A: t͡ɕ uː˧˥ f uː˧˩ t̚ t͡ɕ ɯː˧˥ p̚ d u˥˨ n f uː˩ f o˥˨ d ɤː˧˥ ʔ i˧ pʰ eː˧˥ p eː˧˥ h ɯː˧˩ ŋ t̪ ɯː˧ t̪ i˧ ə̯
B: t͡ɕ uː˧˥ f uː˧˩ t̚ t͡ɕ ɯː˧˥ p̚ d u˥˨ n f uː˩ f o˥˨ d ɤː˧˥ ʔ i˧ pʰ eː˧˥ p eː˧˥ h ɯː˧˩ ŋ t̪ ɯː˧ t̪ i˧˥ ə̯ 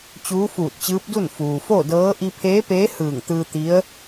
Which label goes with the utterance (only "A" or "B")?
B